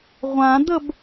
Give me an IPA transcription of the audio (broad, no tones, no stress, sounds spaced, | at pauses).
ʁʷ ã d̪ ə b